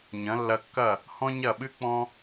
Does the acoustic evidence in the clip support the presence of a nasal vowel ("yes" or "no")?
yes